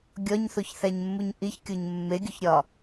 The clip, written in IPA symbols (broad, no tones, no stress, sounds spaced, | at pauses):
ɡʲ ɒ ɲ θ o ç θ æ ɲ mː u ɲ ʔ i ç kʲ o ɲ mː e ɡʲ o ç ɾʲ ɒ